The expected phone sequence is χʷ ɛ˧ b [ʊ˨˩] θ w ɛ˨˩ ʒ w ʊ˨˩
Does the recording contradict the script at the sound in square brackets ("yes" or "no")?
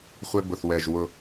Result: no